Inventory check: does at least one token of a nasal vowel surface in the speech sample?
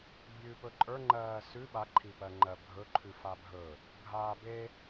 no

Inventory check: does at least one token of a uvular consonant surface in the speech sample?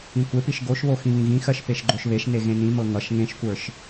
no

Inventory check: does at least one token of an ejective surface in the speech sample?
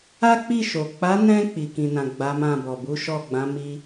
no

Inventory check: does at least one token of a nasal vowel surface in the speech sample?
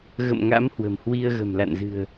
no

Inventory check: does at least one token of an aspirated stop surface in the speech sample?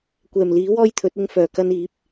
yes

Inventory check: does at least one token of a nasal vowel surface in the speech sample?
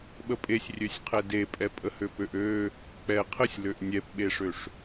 no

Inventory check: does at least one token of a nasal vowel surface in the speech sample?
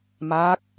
no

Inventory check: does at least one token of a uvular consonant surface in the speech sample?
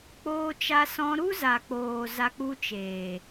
no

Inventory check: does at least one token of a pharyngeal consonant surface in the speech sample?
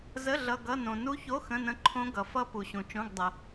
no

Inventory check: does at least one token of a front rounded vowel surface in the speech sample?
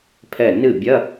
no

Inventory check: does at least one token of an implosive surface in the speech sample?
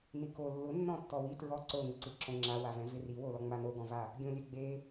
no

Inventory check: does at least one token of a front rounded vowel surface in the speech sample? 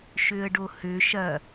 yes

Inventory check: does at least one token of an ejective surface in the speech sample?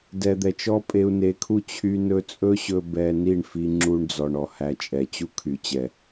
yes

